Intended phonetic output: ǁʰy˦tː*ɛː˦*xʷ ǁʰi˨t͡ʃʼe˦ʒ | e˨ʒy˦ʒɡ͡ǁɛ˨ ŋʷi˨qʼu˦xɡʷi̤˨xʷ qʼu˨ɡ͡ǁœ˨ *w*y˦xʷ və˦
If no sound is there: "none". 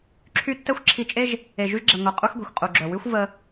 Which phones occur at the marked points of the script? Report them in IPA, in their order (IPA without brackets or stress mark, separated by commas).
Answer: ɛ˦, w